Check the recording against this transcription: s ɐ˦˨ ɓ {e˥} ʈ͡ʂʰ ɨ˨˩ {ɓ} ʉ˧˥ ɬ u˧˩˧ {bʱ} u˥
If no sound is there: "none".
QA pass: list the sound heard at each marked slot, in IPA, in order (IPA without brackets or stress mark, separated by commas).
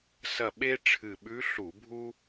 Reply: e˥, ɓ, bʱ